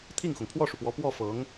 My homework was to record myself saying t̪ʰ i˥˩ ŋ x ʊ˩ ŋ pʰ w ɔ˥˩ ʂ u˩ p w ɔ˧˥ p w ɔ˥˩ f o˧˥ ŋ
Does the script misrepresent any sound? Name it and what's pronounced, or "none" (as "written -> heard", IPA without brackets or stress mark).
o˧˥ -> ɤ˧˥